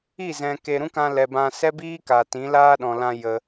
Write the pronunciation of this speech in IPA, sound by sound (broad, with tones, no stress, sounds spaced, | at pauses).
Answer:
i˦˨ z ɛ̃˨ k e˨ ɾ ũ˦ k ã˧ l ɛ˨ b ã˧ s ɛ˦ b iː˦ k a˨ t ĩ˨˦ l aː˦ ɗ ɔ̃˨ l ã˧ j ə˧